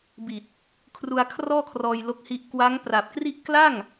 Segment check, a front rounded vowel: absent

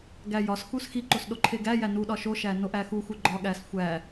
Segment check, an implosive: present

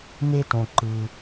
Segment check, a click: present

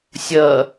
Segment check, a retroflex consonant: absent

